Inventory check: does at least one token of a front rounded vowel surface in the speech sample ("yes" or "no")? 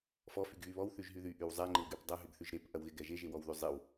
yes